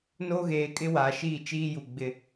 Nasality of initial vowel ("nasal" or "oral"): oral